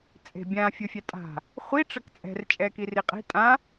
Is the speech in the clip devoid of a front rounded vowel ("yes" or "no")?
yes